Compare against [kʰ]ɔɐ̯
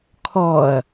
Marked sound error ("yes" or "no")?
no